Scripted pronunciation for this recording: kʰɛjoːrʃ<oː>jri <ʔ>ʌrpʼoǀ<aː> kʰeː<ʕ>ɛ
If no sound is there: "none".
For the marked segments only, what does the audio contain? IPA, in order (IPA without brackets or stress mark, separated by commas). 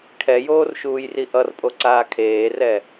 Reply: uː, ʔ, aː, r